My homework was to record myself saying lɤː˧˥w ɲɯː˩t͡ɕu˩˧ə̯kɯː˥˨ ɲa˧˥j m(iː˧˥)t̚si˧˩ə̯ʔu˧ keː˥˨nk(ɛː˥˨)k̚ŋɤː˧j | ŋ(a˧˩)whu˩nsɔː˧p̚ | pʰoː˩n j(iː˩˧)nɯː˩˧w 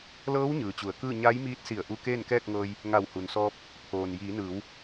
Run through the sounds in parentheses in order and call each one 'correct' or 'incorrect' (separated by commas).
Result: correct, correct, correct, correct